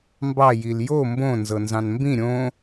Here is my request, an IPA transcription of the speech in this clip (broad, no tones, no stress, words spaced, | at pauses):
mbɑ jiljo mbõ nzɤnzɑ̃nmbĩ ɾʲõ